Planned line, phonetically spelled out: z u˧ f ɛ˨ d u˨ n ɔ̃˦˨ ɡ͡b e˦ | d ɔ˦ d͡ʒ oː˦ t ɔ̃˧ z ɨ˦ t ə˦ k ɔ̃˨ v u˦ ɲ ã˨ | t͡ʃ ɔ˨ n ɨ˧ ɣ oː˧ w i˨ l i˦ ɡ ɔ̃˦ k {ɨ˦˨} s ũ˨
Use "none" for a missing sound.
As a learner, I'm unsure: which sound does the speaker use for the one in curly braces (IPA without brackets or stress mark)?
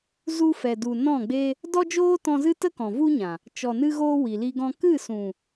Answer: ɨ˦˨